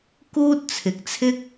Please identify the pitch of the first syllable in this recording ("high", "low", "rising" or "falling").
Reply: high